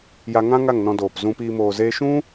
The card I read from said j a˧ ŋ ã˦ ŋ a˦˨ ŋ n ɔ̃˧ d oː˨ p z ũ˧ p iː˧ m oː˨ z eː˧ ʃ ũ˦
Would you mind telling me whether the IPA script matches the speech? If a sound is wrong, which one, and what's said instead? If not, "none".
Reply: none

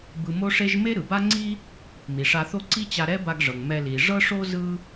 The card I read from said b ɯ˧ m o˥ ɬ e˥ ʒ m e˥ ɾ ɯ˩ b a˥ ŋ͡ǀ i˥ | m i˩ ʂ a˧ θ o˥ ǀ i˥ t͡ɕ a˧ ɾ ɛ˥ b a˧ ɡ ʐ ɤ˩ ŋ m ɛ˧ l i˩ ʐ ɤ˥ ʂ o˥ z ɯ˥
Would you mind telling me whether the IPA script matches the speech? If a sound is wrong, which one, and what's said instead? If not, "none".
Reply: ɬ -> ʂ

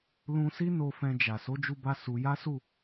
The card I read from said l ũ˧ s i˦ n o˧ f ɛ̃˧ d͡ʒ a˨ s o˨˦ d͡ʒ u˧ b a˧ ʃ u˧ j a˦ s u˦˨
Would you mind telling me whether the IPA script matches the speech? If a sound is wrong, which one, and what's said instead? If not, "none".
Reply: ʃ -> s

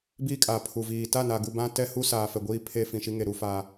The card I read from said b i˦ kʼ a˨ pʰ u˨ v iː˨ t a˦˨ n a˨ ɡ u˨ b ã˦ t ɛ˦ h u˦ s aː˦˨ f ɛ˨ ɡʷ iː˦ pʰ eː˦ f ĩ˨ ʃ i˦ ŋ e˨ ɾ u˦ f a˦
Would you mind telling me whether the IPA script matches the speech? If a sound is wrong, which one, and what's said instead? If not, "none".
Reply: aː˦˨ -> aː˨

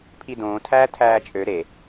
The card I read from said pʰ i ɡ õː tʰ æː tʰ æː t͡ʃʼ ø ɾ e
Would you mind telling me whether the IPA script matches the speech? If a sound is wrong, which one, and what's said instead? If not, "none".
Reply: ɡ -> d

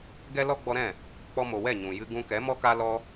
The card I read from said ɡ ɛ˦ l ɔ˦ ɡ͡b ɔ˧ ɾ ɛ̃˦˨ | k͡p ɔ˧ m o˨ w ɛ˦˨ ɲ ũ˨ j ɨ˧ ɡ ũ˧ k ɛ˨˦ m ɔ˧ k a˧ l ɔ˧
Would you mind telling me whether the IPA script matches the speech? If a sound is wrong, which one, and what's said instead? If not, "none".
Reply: none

